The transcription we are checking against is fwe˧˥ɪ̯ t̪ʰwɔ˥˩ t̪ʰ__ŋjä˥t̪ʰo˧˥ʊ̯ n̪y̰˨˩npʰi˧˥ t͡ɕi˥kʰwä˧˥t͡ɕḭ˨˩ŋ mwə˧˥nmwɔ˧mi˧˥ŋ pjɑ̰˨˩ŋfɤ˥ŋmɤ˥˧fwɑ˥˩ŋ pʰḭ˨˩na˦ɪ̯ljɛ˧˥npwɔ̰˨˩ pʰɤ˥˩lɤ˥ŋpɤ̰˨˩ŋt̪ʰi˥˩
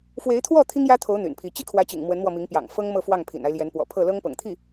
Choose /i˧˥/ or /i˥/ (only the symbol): i˥